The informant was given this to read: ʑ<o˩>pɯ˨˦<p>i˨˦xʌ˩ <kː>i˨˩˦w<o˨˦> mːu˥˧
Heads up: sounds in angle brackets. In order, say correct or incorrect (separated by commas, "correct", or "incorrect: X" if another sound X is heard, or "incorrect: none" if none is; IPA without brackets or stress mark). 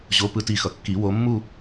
incorrect: o˨˦, incorrect: t, correct, correct